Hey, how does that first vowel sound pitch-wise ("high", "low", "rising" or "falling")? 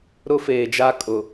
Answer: high